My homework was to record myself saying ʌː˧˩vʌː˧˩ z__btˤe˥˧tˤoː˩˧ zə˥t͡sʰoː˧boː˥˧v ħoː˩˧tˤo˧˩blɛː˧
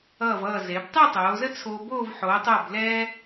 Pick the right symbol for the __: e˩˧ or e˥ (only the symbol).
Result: e˩˧